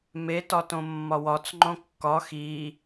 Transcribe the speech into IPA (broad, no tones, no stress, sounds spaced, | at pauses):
m e t ɒ t õ mː ɒ w ɒ t͡s ŋ͡ǃ õ kː ɒ x i